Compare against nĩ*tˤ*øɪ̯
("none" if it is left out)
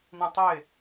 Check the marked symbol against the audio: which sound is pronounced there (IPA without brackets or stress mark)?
tˤ